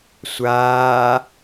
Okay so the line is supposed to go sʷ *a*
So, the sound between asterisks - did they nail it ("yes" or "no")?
no